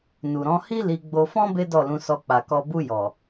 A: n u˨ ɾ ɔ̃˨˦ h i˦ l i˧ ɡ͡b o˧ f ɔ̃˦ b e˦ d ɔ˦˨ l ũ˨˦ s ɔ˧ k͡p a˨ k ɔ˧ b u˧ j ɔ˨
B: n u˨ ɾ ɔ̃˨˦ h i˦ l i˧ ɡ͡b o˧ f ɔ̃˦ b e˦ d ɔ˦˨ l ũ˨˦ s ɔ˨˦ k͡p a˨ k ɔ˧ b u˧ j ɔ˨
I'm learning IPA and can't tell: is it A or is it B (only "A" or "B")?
A